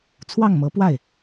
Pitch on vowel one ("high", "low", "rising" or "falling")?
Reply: falling